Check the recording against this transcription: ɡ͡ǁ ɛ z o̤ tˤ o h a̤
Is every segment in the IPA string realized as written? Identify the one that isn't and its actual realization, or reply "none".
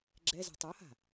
none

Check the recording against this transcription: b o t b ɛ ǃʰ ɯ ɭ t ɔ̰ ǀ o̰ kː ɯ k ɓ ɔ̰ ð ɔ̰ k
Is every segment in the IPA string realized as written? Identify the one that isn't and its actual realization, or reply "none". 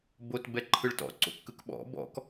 ð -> b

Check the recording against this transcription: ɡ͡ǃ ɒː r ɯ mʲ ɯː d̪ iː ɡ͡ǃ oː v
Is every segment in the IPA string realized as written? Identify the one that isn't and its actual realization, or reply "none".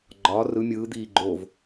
none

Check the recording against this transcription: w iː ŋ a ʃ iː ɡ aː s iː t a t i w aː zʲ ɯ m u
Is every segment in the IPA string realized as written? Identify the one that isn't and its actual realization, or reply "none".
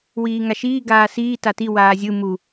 none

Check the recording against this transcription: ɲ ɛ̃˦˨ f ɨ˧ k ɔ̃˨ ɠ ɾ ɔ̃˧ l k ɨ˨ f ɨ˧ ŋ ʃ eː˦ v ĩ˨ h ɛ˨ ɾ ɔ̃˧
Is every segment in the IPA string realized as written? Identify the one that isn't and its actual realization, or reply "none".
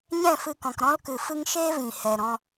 ɠ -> k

